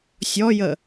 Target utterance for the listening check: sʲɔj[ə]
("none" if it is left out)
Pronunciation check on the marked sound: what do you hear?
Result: ə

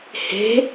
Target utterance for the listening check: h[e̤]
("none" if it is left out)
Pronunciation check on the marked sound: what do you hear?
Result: e̤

